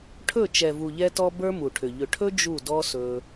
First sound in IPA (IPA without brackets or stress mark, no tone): ʈʰ